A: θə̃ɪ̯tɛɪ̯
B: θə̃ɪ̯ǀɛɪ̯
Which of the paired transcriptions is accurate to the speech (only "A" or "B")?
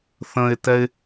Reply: A